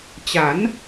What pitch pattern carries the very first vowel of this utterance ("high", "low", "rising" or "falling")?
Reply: rising